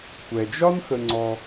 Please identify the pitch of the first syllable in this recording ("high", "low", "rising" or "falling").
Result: low